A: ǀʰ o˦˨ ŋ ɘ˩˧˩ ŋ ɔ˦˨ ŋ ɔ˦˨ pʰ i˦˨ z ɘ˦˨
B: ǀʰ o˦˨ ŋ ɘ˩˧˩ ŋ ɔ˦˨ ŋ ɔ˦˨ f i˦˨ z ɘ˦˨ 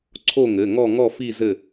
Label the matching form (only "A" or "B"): B